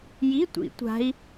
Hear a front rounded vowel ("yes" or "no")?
no